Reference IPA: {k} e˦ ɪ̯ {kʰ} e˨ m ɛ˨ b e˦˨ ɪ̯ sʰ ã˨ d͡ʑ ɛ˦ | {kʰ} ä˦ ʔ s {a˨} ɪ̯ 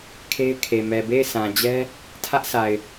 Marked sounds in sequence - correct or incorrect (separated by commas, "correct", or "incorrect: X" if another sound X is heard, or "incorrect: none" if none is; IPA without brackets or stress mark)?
incorrect: kʰ, correct, incorrect: tʰ, correct